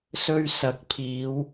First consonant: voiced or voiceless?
voiceless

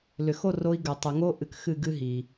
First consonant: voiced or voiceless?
voiced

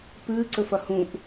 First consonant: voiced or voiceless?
voiceless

